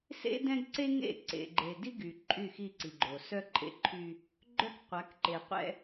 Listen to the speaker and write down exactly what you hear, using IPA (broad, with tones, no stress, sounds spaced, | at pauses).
s ḛ˦ d ɛ̃˦ ɡ ǀ e˦ ŋ ḛ˦˨ ǀ ḛ˨ ɡ͡ǃ e˨ d i˦ ɡ y˨ ǃʼ y˦˨ x i˦˨ ǀ i˨ ɡ͡ǃ o˨ s œ˦ ǃʼ ḛ˦ ǃʰ y˦ | ɡ͡ǃ œ˦ k qʷ a˨˦ k ǃ e˨ qʷ ɛ̰˦